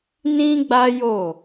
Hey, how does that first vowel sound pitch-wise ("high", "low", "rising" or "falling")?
high